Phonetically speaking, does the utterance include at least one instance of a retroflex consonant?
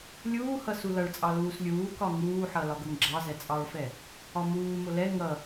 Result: yes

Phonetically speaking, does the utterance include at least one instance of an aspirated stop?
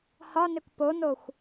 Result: no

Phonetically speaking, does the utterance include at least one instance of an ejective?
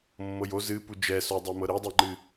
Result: no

